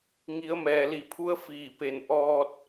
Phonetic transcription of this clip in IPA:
ŋi˩˧ə̯mɛː˩li˧˩pʰu˧˥ə̯ fiː˧˩pe˧˩n ʔɔː˧t̚

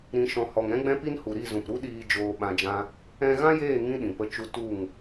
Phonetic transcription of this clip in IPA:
ɾĩ˨ʃɔ̃˨ hɔ˨ŋɛ̃˦ɡ͡bɛ̃˦pi˦n hu˨ɾi˦˨zũ˨pɾu˦ ɗiː˧ d͡ʒoː˧ɓã˧d͡ʒã˦ | ɛ̃˧ɣã˦jeː˦˨ ŋĩ˦ɗĩ˨pə˧t͡ʃu˧ tu˦˨ŋ

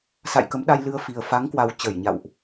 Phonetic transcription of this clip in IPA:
sa̰˧˨j kə˨˦mɗa˧j lɨ˧ə̯fi˨˩ə̯ fa˨˦ŋkwa˨˩w t͡ɕə˧˩jɲa̰˧˨wʔ

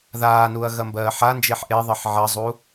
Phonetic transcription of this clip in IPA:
ðaːnuɐ̯ ɣɐmbɜːħand͡ʒeħ ʔeðˤɜħ ʕɐzˤu

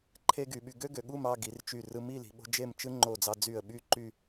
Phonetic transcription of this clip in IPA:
ǃʰe˥ɡy˩˧ɓy˧ ɡø˥ɡø˩˧ɠu˥˧mɑ˥˧ ɡi˩˧rt͡ʃy˧˩ rɯ˧mi˥˧ li̤˩˧ɓo̤˥ d͡ʒe˥˧mt͡ʃɯ˥ ŋ͡ǃo˧˩d͡zɑ˧d͡zy˧˩ə̯ ɓy˥ǃy˥˧

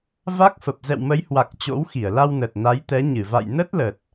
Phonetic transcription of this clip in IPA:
va˦˥k̚fə˨˩p̚ zɛ̰˧˨wmə˨˦jhwa˨˩k̚ t͡ɕo̰˧˥wxi˧˩ə̯la˧w nə˨˩t̚na˨˦jt̪ɛ˨˦ ɲɨ˧˩va̰˧˨j nə˦˥t̚lə˨˩t̚

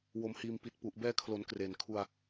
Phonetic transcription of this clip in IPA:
wo˨˩mhiː˨˩m pi˨˩t̚pu˨˩ʔ bɛː˧kʰlo˩˦n kreː˨˩nkʰu˧a̯

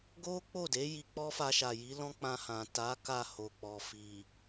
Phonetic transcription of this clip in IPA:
ɡo˦k͡po˦˨de˨˦ ji˧k͡pɔ˦ fa˧ʃa˨ji˨˦ lɔ̃˦k͡pã˧hã˨ ta˨˦ ka˦˨ho˨k͡pɔ˨ fi˨

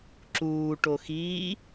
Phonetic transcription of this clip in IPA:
ǁuː ʈoxiː

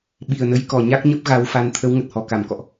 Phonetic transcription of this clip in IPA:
ɓi˨˩ə̯nə˨˦jkɔ˨˩ ɲa˦˥k̚ɲə˦˥p̚ɣa˨˦wfa˨˦n t̪ʰə˨˦w ŋə˨˩t̚hɔ˨˩ ka˧˩m kɔ̰˧˨ʔ

